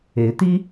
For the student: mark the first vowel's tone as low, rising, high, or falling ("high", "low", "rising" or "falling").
rising